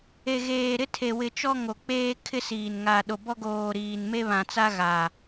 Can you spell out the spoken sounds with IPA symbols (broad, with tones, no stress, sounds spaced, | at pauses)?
e˨ ɣ eː˨ ɾ ɪ˦ tʰ e˨ w ɪ˨ t͡ʃ ɔ˦ ŋ o˨ k͡p eː˦ kʰ ɪ˦ s iː˨ n ŋ a˨ ɗ o˨ b ɔ˦ ɡ oː˨ ɾ iː˨ n m e˦ β ã˨ t͡s a˦ ɣ a˨